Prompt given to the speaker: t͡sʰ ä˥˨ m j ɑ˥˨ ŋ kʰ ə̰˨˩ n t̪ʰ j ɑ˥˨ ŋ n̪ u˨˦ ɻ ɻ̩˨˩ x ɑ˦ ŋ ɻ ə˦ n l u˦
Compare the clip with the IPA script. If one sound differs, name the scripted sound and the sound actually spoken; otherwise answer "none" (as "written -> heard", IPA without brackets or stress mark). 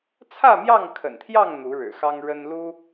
none